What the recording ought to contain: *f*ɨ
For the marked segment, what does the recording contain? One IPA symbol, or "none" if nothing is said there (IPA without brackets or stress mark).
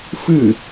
f